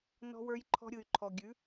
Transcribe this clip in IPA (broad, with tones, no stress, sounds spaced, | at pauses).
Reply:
n ɔ̤˦ w ə˞˦ j ǃʰ ɔ̤˦ ɾʲ ɯ˨ y̯ ǃʰ ɔ˨ ɡʲ ʉ˨˦